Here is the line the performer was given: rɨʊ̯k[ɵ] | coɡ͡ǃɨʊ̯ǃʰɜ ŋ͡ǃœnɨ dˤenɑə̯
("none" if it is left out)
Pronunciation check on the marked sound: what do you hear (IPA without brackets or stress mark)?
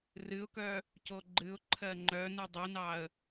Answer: œ